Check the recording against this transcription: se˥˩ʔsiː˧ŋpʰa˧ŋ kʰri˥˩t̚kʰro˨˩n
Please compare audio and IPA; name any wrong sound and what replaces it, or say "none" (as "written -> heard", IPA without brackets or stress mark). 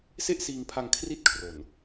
none